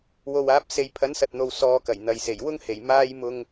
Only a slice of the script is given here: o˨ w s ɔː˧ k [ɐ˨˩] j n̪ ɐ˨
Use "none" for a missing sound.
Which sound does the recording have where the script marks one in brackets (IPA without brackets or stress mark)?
ɐ˨˩